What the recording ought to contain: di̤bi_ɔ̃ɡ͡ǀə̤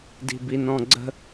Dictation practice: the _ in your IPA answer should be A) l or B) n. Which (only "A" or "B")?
B